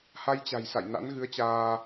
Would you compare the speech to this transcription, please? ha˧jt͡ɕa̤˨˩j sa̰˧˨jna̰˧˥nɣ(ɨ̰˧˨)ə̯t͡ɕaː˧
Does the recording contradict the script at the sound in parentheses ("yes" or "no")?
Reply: yes